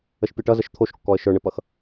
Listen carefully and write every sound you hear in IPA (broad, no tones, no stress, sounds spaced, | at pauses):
ə ʃ pʲ o ʈ ʌ z ə ʃ t̪ʰ o ʃ kː ɔ ə̯ ʃ ə˞ ɳ ɘ p ʌ x